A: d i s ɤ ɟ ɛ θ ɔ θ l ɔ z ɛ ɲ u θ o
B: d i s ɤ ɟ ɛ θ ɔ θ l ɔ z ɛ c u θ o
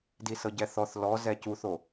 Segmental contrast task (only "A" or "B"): B